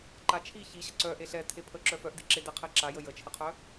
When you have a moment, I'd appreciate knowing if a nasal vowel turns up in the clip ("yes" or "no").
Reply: no